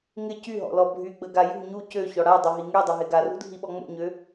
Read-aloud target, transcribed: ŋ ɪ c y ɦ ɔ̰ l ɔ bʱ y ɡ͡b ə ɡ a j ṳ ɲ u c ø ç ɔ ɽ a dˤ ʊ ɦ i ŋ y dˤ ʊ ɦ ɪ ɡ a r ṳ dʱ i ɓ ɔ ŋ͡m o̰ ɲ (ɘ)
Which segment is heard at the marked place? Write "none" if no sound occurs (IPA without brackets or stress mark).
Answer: ø